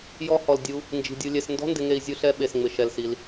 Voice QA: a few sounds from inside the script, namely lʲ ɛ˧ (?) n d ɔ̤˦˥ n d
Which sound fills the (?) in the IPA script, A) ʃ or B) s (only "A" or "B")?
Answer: B